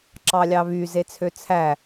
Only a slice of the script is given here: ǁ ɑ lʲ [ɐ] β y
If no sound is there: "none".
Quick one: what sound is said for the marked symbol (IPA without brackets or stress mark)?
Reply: ɑ